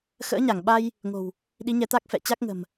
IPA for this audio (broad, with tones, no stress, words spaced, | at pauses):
xə̰ː˧˥ɲa˧˩ŋɓa˧j | ŋo̤˨˩w | ɗi˨˦ɲɛ˨˦t̪a˦˥k̚ fɛ̰˧˨t͡ɕa˦˥k̚ŋə̤˨˩m